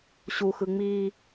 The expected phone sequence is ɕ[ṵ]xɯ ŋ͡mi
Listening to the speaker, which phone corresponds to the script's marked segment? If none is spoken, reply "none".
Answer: u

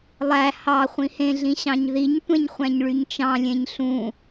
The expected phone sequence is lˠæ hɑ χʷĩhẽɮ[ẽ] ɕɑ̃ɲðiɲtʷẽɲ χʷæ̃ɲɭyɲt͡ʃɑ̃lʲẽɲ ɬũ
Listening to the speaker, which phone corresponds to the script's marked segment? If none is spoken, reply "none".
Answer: ĩ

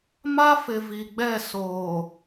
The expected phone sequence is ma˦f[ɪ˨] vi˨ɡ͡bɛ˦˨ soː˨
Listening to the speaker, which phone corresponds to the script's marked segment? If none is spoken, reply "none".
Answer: ɪ˨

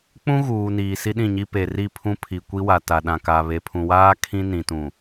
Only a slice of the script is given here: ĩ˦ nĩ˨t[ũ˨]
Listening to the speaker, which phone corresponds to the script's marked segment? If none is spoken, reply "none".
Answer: ũ˨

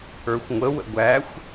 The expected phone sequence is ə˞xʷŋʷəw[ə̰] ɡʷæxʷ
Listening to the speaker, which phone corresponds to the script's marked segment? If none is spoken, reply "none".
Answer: ə̰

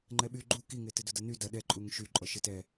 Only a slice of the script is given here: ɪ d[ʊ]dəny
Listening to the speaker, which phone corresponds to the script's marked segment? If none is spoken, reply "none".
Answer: ʊ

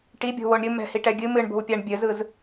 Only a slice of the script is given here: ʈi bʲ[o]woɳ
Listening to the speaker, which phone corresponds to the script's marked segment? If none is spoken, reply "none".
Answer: o̤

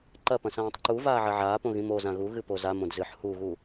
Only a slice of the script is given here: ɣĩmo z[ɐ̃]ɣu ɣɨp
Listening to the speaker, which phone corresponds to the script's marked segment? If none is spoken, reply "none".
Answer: ã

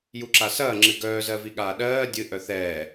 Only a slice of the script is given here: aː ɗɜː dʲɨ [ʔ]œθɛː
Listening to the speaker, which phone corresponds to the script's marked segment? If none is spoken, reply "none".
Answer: ʔ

